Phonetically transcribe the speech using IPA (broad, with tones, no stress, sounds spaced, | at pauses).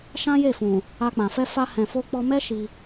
ʃ ã˦ j e˦˨ f ũ˨ | a˧ k͡p ã˨ f ɛ˧ f a˧ h ɛ̃˨ f o˧ k͡p ɔ˧ m ɛ˦ ʃ i˧